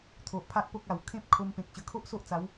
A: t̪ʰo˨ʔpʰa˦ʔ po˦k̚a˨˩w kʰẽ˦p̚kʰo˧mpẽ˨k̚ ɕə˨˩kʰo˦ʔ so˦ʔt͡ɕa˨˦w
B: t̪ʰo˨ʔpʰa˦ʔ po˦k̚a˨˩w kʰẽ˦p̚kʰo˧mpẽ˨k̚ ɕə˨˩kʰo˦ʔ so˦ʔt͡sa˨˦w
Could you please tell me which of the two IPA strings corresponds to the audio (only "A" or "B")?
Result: B